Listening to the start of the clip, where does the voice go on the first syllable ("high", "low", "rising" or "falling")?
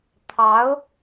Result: rising